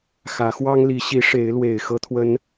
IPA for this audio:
xä˨˦xwɑ˦ŋli˨˦ɕi˨˦ ʂe˨˦ɪ̯lwe˨˩ɪ̯ xɤ˦t̪ʰwə˦n

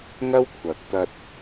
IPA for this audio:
ŋɐ˥wkʷʰɐ˨k̚ t̪ɐ˧t̚

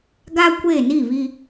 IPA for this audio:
ɡa˦ kʷe˦˨ni˦˨βi˦

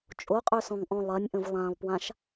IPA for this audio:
t͡ʃʼoqʼøsɔ̃ŋʔɔ̃ lˠɜnʲʔə̃v lˠãlˠpwãʃ

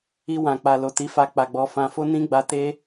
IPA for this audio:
i˧wã˨ k͡pa˨lo˨ti˨˦fa˧ k͡pa˨ɡ͡bɔ˧ fã˧fo˦ nĩ˦ɡ͡ba˧te˦

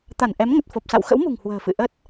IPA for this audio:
t̪a˧˩nʔɛ˨˦m ŋə˨˩t̚fo˨˩p̚sa̰˧˨w xə̰˧˥wmṳ˨˩ŋ hwə̤ː˨˩ fɨ̰˧˨ʔə˦˥t̚

